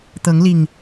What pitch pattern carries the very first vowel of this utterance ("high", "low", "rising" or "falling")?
rising